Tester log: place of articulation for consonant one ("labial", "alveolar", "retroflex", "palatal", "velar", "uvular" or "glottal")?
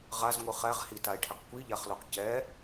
uvular